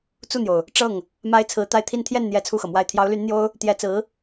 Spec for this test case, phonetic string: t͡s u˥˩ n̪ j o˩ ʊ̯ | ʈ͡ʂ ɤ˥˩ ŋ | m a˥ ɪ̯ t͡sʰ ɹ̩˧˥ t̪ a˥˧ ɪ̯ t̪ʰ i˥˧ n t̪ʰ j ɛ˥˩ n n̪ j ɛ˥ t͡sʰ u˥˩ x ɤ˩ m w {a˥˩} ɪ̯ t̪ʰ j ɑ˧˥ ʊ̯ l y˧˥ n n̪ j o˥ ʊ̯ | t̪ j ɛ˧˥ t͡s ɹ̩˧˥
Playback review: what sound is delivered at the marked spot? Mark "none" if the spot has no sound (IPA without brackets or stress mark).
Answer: a˥˩